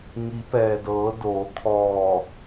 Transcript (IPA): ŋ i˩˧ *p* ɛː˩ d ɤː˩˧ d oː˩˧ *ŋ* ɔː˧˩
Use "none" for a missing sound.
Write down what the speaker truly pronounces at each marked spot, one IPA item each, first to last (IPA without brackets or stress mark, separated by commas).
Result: p, kʰ